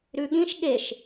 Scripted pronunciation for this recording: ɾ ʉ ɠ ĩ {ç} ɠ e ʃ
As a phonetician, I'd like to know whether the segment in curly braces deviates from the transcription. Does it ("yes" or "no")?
yes